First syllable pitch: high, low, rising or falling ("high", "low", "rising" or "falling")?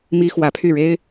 high